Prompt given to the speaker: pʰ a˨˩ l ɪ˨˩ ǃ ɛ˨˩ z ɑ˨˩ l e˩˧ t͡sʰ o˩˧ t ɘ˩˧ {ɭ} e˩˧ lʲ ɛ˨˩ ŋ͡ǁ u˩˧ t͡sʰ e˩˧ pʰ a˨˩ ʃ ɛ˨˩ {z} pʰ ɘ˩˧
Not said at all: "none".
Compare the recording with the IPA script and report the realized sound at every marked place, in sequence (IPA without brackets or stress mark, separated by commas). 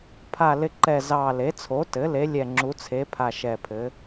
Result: l, none